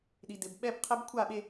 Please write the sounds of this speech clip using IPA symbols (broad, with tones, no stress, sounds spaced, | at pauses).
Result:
ɗ i˨ d ɪ˨ b ɓ ɛ˦ b qʰ ɘ˦ b kʷʰ a˦˨ ɓ e˦